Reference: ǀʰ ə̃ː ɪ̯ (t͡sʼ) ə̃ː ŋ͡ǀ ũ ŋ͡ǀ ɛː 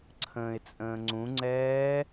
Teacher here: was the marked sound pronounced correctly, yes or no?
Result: yes